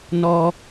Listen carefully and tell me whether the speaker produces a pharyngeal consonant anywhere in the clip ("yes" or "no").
no